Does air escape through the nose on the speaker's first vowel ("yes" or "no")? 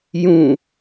yes